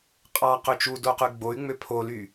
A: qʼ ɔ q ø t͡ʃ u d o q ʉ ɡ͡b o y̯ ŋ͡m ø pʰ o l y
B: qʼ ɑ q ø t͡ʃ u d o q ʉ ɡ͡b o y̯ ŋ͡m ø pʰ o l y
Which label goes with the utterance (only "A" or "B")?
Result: B